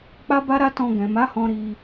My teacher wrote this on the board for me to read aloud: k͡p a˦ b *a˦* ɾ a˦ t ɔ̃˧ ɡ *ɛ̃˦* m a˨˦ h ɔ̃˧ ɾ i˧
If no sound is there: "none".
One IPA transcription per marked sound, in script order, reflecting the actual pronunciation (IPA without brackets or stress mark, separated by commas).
a˦, ɛ̃˨